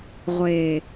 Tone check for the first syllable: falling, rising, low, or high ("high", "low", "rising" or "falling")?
low